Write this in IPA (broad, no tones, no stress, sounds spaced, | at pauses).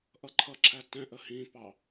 ʔ ʌ ǃʰ ʌ ǁʰ æ t ɛ̃ ʔ ə h ĩ p ɑ